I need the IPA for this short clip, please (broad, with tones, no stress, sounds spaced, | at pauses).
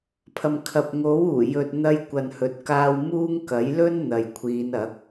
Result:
pʰ ɐ˨ m kʰ ɐ˨ p̚ ŋ o˨˥ w uː˨˩ j ɵ˨ t̚ n̪ ɐ˧ j kʷ ɐ˨ n h ɵ˨ t̚ k aː˧ w m uː˥ ŋ k ɐ˨˥ j l ɵ˥ n n̪ ɐ˨ j kʷʰ iː˨˧ n ɐ˨˥ k̚